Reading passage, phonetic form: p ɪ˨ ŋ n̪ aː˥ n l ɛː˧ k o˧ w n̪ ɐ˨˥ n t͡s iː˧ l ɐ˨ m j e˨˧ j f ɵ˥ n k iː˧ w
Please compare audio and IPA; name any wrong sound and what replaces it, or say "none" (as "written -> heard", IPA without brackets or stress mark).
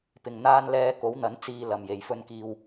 o˧ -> o˨˥